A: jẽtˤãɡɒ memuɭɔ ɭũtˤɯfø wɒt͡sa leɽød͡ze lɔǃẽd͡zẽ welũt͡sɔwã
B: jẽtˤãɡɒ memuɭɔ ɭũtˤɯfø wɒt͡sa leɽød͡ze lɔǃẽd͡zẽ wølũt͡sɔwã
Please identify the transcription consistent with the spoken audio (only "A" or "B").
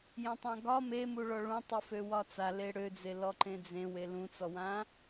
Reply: A